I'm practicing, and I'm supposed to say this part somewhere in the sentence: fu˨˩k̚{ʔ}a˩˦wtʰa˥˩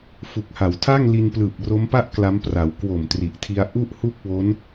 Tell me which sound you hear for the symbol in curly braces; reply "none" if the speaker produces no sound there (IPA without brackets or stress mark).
h